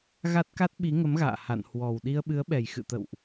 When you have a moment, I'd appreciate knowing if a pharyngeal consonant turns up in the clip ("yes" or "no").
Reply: no